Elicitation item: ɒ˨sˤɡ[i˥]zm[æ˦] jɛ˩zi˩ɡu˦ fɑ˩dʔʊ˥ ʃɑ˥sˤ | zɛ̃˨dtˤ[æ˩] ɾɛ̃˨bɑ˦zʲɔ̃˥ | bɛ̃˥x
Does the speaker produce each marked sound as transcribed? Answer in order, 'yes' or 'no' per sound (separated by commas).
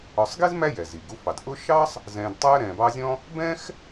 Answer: yes, yes, no